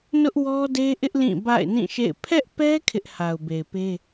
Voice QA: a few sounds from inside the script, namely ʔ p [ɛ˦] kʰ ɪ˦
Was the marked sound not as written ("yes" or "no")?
no